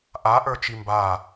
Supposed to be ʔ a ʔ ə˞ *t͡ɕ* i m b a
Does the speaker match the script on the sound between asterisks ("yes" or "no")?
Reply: no